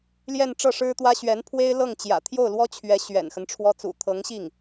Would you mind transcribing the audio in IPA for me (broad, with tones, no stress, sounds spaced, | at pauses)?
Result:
l j ɛ˥˧ n ʈ͡ʂ ɤ˥˩ ʂ ɻ̩˥ t̪ w ä˥ ɕ ɥ ɛ˧˥ n pʰ w e˥ ɪ̯ l ɤ˥˩ ŋ t͡ɕ j ä̰˨˩ t̪ʰ j o˥˩ ʊ̯ l w ɔ˥ t͡ɕʰ ɥ ɛ˧˥ ɕ ɥ ɛ̰˨˩ n x ə˦ n ʈ͡ʂʰ w ɔ˥ t͡s ṵ˨˩ t̪ʰ ɤ˧˥ ŋ ɕ i˥˩ ŋ